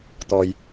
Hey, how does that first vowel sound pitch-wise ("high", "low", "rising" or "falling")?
low